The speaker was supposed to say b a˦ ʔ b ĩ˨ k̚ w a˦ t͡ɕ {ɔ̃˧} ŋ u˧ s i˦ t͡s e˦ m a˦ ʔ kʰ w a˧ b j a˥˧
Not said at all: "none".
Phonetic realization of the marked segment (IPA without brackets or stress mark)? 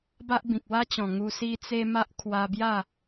ɔ̃˨˩